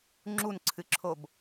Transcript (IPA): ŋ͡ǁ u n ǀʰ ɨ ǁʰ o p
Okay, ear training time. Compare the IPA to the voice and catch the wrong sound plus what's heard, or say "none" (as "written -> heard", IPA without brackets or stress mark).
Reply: p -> b